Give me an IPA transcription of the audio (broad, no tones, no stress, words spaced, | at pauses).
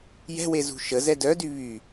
jɛ̤we zṳʃəzɛ dœdy βy